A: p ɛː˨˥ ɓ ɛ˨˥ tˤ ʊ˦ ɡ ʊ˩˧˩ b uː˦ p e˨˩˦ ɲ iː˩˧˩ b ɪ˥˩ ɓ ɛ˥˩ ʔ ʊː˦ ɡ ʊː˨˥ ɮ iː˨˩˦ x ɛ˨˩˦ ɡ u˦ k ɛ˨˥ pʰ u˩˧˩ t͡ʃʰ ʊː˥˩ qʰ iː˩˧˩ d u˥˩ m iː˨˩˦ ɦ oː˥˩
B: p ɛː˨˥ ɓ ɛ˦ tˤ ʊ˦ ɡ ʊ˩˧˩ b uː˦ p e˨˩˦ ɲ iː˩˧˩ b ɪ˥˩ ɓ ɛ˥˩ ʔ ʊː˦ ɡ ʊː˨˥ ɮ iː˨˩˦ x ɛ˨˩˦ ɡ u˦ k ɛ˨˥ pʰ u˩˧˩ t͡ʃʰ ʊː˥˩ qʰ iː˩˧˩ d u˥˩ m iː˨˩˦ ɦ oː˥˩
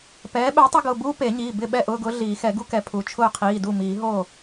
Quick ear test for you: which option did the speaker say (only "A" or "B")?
A